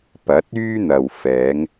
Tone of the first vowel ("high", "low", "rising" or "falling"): rising